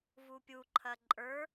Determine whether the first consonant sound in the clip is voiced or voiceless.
voiced